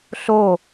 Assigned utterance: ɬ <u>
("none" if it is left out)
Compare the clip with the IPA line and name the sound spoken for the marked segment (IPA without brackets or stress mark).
o